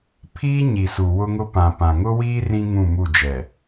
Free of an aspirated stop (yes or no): no